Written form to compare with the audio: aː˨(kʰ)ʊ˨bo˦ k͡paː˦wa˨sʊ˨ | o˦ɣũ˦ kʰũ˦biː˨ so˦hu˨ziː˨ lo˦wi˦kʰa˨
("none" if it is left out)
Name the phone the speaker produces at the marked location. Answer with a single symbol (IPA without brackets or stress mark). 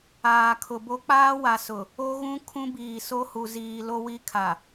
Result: kʰ